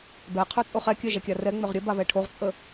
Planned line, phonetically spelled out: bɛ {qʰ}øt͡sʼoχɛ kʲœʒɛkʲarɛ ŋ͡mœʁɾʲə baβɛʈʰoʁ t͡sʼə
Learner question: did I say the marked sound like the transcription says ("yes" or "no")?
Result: yes